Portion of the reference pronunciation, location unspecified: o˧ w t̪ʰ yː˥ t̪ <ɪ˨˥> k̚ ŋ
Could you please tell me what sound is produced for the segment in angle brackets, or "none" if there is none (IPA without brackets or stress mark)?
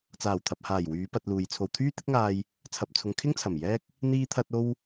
ɪ˥